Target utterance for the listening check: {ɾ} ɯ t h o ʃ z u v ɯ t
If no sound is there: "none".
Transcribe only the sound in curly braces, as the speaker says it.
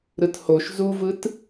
ɾ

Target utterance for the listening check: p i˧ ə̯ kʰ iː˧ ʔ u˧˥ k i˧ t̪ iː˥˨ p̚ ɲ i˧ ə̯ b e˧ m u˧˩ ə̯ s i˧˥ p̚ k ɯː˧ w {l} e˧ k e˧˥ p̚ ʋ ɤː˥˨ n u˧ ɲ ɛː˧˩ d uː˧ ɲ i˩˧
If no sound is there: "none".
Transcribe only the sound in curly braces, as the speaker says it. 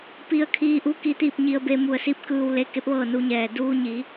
l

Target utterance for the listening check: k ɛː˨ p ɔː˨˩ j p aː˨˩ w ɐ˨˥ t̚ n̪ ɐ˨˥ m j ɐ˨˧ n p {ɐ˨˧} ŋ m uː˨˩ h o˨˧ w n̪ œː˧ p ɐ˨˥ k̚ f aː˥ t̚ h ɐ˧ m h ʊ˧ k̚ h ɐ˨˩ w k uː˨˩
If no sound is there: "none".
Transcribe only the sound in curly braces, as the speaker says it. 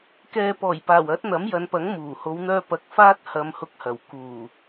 ɐ˨˥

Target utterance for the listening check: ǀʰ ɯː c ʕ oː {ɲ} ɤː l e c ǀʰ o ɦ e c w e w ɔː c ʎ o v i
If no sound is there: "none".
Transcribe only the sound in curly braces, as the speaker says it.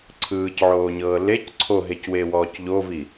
ɲ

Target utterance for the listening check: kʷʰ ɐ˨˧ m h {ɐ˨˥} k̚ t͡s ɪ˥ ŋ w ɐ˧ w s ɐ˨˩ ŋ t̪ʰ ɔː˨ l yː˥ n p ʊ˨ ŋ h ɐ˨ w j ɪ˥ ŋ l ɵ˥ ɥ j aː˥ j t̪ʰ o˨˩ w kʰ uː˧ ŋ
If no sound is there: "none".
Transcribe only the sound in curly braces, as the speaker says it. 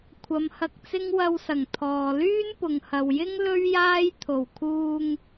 ɐ˧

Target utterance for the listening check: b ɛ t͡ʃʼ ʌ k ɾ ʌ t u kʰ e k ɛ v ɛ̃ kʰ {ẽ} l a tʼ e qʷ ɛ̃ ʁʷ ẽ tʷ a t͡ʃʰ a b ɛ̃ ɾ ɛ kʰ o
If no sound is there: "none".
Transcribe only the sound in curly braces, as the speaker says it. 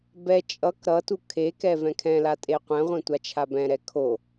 ɛ̃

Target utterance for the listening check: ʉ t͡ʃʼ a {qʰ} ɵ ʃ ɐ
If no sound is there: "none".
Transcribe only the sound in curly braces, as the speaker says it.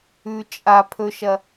pʰ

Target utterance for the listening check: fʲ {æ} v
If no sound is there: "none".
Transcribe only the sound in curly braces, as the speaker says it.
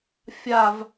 a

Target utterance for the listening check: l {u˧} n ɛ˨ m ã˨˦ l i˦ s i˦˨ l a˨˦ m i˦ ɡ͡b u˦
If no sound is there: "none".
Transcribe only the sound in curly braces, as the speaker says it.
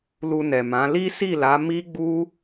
u˧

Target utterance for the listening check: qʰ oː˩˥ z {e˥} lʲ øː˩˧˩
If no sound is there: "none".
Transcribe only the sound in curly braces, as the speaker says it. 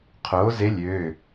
e˧˥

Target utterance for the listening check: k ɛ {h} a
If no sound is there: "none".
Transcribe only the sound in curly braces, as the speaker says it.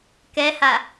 h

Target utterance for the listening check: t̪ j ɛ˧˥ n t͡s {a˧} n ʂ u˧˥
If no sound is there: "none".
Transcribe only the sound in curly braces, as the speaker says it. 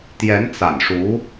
a̰˨˩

